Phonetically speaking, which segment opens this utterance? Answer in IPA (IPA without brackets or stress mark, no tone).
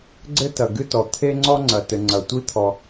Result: ɡ͡ǀ